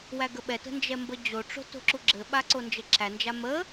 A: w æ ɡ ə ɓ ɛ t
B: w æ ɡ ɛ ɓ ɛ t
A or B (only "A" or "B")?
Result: A